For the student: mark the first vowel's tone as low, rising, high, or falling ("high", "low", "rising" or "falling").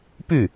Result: falling